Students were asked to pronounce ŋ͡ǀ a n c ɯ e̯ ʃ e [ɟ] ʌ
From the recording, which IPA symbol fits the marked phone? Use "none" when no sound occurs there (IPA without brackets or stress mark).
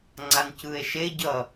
ɟ